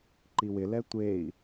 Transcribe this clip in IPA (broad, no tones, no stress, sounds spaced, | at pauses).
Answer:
ǃ i w ɪ l ɛ tʷ e i̯